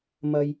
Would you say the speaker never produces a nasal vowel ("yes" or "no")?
yes